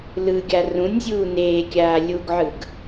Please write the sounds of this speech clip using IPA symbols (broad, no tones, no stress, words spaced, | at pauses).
lɯɡʲa rũnʲzʲuː neːkʲaː lʲuɡʕɯɡ